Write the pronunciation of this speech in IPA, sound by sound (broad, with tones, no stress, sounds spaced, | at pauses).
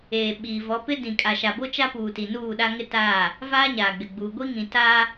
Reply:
eː˨ ɓ iː˨ v ɔ˨˦ p ɪ˦ d ĩ˨ kʼ a˨ ʃ a˨ b o˦ t͡ʃ a˦ p uː˨ t i˨ n uː˦˨ ɗ a˦ ŋ ɪ˦ t aː˦˨ | v aː˦ ɲ aː˨ ɡ͡b ɪ˨ ɡ͡b uː˨ ɡʷ i˦ ŋ ĩ˨ t a˦